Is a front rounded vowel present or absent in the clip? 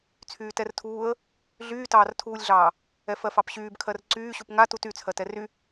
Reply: present